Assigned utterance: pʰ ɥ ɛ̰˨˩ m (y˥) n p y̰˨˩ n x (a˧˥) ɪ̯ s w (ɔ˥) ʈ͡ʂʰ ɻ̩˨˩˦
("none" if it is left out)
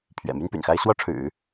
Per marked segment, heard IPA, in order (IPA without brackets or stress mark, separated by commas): y˥, a˥, ɔ˥